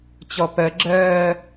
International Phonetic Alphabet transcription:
t͡ɕ ɔ p ɜ ɡ͡ǁ ɜː

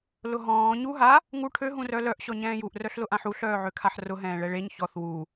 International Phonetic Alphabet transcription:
l ʊ ɦ ɔ̃ː ɲ u ɦ a | ŋ u ʈʰ ø ɦ ũ r œ l œ ʔ ɕ ɔ ɲ ɛ̃ː j u ʔ r œ ɬ l ʊ ʔ ã ħ u ɬ œː ʕ ø kʰ a ħ r ʊ ɦ ɛ̃ː ɭ ɛ ɭ e ɲ ç ɔ θ w u

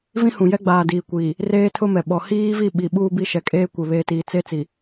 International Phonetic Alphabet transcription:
v ĩ˦ h ũ˨ j ɛ˦ ɡ͡b aː˨ d iː˨ kʷ iː˨ | r eː˦ tʰ ʊ˦ m ɛ˨ ɓ ɔ˨ h iː˦ v i˦˨ ɓ i˨ ɓ uː˦ b i˦ ʃ ɛ˨ kʼ eː˦ kʷ e˨ β eː˨ t iː˨ t͡s e˦ t͡s i˨

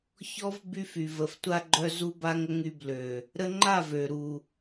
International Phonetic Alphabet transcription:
ç ɔ˦ v b y˦ f y˨ v ə˨ f tʷ a˧ ɡ͡ǃ œ˧ z u˦ b a˦ ŋ ə˦ ŋ y˧ b l ø˨ | ɾ ə˧ ŋ͡ǃ a˦˨ v ø˨ ɾ u˨

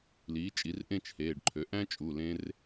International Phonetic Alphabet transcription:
l iː˩˥ t͡ʃʼ i˩˥ r ʔ ẽ˥˧ t͡ʃ h eː˩˧˩ ɖ ǃʰ ø˩˥ ʔ æ̃˦˥ t͡ʃʼ u˩˧˩ l ẽ˦˥ r

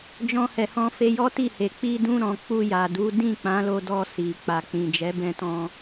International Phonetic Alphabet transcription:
d͡ʒ ɔ̃˧ h ɛ˨ h ɔ̃˧ f e˧ j ɔ˦ t i˦˨ h e˨ k͡p i˧ d ũ˧ ɾ ɔ̃˨ k͡p u˧ j a˨ d u˨˦ d ĩ˦˨ k͡p ã˨˦ l o˧ d ɔ˧ s i˨ k͡p a˨ k͡p ĩ˨ d͡ʒ ɛ˨˦ b ɛ̃˧ t ɔ̃˧

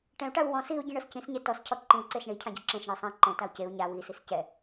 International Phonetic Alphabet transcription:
ʈ ɛ̃ u̯ ʈ a u̯ w ɔ̃ s i u̯ ɟ ĩ ɳ ɤ s c ĩ s ɲ e t ɔ s cʰ ɔ ǃ ĩ u̯ ǀ e s ɳ i cʰ ã ɟ u ǁ ẽ s ɳ i sˤ ã ǃ ɛ̃ t a u̯ c e u̯ ɲ a w i s i s c ɛ

